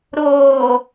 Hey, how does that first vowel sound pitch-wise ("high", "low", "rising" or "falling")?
low